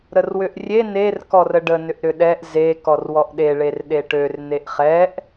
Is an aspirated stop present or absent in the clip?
absent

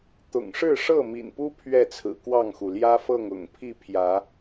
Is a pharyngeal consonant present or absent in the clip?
absent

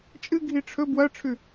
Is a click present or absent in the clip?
absent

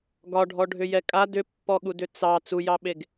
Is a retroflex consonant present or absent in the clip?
present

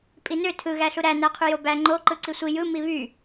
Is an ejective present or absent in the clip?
present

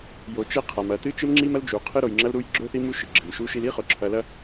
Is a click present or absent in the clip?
present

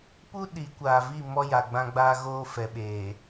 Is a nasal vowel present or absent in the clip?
present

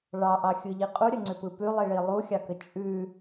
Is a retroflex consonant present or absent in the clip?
present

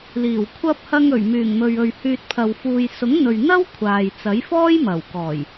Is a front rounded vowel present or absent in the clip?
present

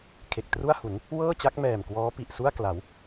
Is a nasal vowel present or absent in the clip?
absent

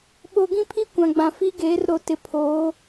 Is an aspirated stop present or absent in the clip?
present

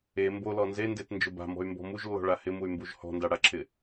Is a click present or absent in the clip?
present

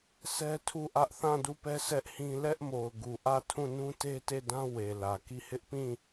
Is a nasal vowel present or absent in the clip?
present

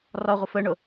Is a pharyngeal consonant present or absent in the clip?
absent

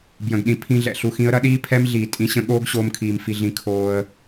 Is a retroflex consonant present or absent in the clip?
absent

